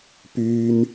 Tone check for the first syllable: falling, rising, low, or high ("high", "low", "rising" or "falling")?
low